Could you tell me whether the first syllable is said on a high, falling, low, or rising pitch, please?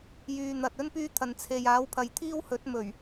low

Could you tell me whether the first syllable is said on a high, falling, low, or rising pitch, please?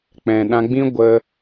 low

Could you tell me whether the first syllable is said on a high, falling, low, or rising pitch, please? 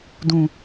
low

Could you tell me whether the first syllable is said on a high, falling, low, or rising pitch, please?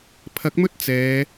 rising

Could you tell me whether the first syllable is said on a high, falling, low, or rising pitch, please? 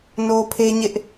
high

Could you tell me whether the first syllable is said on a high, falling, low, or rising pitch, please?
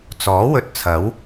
rising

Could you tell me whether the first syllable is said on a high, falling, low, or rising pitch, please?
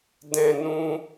high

